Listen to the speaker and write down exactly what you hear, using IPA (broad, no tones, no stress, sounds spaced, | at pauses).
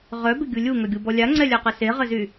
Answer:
ʁ œ b ɪ ɡʲ u lʲ u ŋ œ ɡʲ u b ɔ lʲ a ŋ͡ǀ ɛ lʲ a q ə s e ʁ ə z y